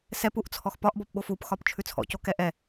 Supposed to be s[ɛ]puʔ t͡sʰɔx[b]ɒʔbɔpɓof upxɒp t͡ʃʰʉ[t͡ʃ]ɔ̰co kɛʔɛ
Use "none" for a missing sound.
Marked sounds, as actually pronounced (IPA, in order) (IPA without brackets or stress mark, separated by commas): ɛ, p, t͡sʰ